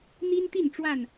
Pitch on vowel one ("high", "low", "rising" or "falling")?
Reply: high